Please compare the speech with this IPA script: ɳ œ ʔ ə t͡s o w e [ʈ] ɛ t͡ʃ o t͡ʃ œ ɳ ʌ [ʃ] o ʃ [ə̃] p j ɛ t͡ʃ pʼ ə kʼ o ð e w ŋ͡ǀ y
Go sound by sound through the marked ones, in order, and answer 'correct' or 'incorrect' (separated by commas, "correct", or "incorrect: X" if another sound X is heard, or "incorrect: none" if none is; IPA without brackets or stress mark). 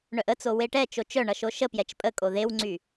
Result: correct, correct, incorrect: ə